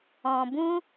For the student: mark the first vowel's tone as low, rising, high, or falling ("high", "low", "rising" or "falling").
low